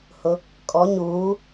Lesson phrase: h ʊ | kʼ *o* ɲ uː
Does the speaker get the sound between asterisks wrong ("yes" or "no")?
yes